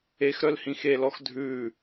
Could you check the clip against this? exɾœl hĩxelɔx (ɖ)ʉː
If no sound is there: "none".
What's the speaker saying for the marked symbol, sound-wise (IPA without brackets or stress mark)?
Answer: dʱ